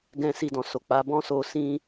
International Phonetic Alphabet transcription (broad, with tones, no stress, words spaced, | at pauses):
ɡɛ̃˦ si˧dɔ̃˨so˨k͡pa˨˦ bɔ̃˦ so˧ sĩ˦